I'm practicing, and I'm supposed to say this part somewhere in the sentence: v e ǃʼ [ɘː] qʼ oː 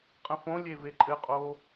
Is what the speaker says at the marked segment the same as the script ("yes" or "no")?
no